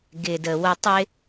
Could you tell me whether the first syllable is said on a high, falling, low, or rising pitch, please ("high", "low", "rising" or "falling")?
low